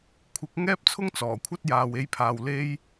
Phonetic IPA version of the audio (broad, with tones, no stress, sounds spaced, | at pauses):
kʷʰ ɪ˨˥ k̚ ŋ ɛː˥ p̚ t͡sʰ ʊ˥ ŋ t͡s ɔː˨˩ kʷʰ ɐ˥ t̚ j aː˧ w e˥ j pʰ aː˧ w l e˥ j